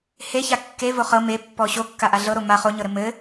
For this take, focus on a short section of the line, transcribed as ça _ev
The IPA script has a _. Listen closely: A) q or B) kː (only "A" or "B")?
B